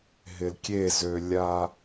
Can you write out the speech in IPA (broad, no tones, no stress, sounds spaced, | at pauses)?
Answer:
ɦ ɪ l kʲ e z ø lʲ a